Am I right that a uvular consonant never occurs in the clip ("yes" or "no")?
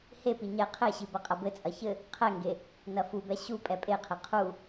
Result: no